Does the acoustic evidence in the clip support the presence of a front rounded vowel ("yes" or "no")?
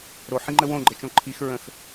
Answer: no